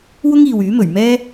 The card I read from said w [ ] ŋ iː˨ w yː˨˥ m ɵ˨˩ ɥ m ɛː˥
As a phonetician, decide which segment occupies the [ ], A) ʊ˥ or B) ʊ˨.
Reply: A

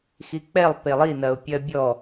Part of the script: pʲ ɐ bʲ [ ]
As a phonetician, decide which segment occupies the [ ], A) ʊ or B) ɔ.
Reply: B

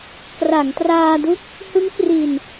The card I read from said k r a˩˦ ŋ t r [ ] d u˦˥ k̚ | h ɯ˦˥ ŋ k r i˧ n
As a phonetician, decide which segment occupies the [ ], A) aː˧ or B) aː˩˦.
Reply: A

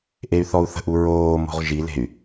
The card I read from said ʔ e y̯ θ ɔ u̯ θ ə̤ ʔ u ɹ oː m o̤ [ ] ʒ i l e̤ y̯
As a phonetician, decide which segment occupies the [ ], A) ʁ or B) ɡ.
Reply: A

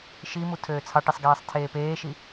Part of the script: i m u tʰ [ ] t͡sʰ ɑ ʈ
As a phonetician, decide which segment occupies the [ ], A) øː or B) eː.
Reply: A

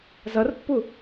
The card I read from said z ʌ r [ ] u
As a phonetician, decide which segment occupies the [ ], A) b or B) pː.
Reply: B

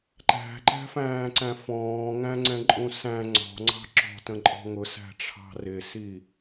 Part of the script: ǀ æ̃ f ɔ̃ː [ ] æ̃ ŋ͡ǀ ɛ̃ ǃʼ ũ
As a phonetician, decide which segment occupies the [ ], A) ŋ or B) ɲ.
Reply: A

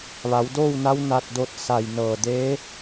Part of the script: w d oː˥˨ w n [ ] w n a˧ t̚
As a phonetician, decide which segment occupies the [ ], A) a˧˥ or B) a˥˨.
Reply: A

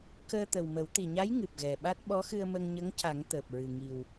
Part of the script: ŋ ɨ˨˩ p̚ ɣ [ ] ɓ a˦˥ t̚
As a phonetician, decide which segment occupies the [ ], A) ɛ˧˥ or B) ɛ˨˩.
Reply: B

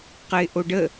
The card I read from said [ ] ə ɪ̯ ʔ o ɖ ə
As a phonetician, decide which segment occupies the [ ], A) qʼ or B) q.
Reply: B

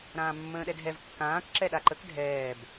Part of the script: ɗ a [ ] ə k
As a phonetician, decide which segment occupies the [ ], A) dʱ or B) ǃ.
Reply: B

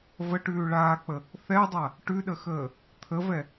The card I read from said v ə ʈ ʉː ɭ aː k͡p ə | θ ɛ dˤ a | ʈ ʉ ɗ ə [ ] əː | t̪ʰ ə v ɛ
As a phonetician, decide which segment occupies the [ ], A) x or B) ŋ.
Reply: A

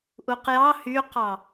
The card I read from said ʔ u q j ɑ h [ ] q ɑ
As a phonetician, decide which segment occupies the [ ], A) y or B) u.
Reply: A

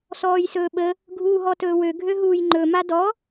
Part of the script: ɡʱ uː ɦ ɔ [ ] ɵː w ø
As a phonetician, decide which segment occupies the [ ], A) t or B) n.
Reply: A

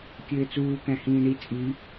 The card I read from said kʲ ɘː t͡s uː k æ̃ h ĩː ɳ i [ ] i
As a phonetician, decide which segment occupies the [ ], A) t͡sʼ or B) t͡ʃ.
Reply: A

